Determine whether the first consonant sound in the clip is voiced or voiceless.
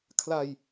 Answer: voiceless